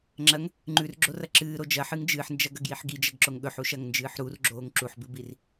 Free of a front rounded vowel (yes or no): yes